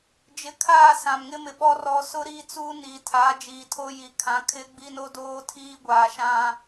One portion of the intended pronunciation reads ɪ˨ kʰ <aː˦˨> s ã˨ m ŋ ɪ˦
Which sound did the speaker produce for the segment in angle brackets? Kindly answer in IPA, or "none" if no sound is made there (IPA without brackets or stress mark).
aː˦˨